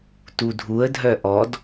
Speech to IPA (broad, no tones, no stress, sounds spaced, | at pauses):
t u dʱ u ə̯ dʱ œ ʔ ɔ d